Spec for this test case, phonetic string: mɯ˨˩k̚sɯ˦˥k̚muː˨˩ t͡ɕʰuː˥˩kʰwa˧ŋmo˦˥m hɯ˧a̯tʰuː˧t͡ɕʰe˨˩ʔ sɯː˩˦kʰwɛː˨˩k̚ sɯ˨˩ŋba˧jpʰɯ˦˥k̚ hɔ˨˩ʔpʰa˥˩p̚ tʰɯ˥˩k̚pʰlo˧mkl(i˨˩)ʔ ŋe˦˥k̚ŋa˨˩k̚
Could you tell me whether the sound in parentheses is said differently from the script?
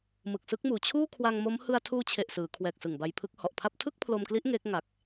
yes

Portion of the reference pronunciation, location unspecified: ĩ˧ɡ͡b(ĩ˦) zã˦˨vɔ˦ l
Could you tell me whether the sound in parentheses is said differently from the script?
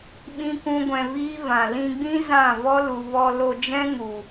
no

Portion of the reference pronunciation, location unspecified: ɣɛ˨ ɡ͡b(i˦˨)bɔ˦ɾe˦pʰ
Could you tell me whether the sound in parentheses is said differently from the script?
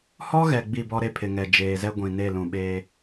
no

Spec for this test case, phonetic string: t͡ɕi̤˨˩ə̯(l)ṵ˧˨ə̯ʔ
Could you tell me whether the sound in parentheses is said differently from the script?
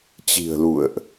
no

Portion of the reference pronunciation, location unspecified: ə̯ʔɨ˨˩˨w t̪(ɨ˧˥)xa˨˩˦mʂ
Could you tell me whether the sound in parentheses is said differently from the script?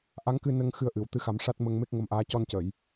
no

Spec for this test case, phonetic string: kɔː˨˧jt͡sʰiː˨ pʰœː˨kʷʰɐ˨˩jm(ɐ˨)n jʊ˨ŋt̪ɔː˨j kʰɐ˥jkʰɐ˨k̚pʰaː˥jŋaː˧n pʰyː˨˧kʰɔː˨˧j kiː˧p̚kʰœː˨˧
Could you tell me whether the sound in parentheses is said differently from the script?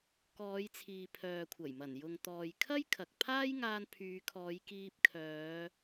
yes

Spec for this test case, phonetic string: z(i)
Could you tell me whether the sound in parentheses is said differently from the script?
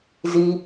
no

